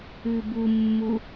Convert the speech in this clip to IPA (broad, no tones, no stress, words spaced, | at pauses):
ʉbumːu